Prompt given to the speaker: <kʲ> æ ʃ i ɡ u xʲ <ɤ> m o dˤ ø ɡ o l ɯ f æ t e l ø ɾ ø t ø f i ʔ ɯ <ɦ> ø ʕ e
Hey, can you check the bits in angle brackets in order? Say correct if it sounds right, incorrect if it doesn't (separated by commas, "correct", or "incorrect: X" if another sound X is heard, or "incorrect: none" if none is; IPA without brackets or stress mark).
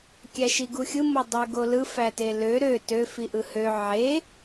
correct, incorrect: ɯ, incorrect: h